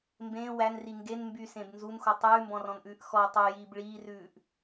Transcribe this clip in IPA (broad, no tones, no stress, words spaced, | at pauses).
mbẽː wænri ŋɡen mbysẽb nzunxo tˤʉːmbɔ̃rɔ̃nʔʉːʔ xɔ tˤujiːb ɭiːrʉːʔ